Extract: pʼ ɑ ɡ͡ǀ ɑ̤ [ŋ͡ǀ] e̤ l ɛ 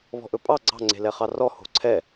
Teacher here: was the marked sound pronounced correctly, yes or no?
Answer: yes